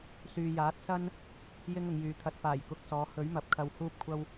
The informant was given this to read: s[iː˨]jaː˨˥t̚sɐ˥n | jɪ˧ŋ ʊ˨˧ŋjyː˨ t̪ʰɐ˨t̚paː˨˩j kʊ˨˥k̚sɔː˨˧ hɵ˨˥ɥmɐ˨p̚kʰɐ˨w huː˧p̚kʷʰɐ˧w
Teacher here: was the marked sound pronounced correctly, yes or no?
no